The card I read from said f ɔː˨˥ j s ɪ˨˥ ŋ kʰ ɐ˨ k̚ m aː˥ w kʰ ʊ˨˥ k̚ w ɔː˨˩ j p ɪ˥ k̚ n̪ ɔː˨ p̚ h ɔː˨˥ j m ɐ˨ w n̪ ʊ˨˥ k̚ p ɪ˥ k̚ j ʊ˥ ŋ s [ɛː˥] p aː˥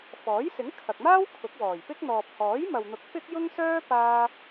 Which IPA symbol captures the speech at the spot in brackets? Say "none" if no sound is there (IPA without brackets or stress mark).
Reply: œː˥